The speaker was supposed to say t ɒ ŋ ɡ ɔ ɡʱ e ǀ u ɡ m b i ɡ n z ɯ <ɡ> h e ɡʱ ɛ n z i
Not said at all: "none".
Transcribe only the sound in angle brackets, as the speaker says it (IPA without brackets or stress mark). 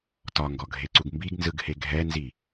ɡ